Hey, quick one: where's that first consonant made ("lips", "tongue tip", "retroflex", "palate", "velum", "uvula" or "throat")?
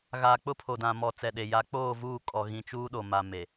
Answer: velum